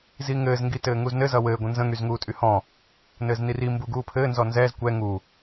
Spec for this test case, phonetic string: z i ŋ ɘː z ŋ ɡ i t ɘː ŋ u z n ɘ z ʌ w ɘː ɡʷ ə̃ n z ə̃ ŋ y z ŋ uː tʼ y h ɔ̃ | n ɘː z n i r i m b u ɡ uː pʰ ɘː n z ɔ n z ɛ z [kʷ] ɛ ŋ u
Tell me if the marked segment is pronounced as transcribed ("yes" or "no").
yes